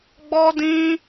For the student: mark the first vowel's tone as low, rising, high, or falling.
high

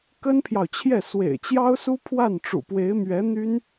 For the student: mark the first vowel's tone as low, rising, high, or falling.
high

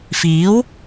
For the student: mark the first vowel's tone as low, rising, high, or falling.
rising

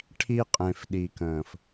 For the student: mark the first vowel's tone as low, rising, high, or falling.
high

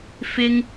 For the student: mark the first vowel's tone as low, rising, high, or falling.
high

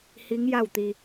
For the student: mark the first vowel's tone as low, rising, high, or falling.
rising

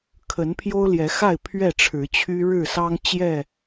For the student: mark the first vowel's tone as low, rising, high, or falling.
rising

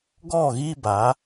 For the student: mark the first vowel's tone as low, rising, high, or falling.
falling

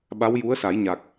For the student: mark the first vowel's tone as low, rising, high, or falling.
rising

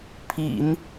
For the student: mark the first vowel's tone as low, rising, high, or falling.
low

